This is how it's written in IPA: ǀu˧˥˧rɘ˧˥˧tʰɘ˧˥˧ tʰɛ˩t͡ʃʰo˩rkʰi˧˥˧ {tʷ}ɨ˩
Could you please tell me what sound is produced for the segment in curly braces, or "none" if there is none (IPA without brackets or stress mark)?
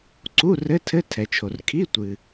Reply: tʷ